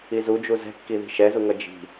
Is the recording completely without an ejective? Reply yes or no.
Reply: yes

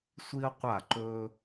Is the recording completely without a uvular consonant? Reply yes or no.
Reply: no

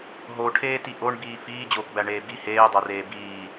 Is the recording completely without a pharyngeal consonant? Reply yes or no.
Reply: yes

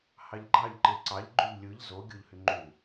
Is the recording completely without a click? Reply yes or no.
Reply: no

